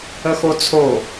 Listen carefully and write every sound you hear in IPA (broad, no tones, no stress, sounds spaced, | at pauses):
ə x o t͡sʰ o